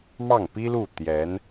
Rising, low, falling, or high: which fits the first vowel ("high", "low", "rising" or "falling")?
falling